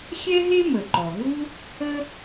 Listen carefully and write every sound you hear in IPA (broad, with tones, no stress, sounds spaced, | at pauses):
xʲ ɛ˥ ɦ e˥ m ə˩ ǃ ɔ˩ ɦ u˥ | ə˥